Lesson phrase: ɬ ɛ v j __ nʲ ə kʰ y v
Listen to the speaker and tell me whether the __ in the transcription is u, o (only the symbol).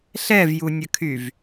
u